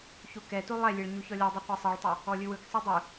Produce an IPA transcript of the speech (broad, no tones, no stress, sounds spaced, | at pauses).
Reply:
ç u k ɛ t u lˠ ɛ lʲ e ɭ ɲ u ç ɔ lʲ ɔ dˤ i qʷ ɛ sˤ i ɭ tˤ e | ɔ lʲ ɯ w ɯ k sˤ ɯ dˤ ɯ